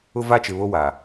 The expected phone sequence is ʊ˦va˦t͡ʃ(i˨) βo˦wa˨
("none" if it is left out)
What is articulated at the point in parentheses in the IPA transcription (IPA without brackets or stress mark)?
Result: ɪ˨